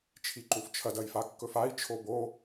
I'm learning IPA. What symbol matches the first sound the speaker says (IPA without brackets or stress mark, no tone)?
t͡ʃʰ